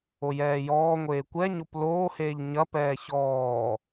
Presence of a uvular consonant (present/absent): absent